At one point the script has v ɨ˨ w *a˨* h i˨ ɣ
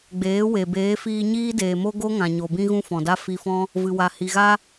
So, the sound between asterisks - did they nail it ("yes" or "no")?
yes